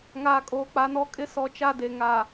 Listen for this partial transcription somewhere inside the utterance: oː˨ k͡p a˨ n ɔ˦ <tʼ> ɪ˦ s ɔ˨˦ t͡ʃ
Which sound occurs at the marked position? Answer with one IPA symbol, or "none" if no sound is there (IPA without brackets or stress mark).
kʼ